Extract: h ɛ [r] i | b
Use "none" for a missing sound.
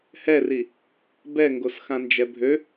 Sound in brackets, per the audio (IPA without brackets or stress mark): r